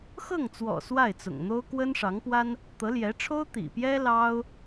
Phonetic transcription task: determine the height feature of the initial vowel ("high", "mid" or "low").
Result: mid